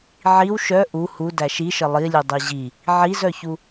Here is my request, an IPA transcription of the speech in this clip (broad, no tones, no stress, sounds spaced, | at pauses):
ʕ i w ʃ œ ʔ u h u d æ ʃ i ʃ ə lˠ i lʲ u dˤ i ʑ i | ʕ i z œ ç u